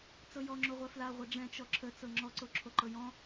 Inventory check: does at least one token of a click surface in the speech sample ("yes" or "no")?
yes